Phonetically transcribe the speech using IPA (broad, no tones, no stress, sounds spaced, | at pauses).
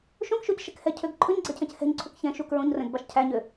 ʃ õ k ʃ o c ʃ ɛ k h ɛ cʰ ø ɡ ǃʰ ɵ ɲ ɡ͡ǀ ɛ cʰ ɛ̃ c h ɛ̤ ɲ ǀʰ u k ç ɛ̃ ʃ u k ɹ õ ɲ r ɛ̃ ɡ b ɑ ʃ cʰ æ ɲ ø